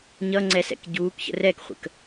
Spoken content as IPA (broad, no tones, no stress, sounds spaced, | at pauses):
ɲ ʌ ŋ͡ǀ ɛ s ɛ̰ k ɟ uː k ç ə̰ r ɛ k χʷ ə̰ k